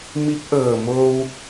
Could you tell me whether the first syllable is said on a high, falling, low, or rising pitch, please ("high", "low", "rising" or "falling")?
rising